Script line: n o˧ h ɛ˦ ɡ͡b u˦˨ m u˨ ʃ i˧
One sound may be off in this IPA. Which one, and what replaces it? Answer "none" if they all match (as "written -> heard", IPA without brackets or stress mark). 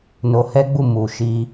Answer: none